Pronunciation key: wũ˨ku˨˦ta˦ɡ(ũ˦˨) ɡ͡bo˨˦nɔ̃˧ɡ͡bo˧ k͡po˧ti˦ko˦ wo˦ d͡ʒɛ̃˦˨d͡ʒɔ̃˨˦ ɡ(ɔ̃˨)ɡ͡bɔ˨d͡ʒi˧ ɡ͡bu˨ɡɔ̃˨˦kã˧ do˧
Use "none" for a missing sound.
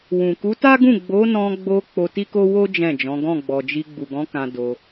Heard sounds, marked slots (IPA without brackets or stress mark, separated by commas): ũ˦˨, ɔ̃˦˨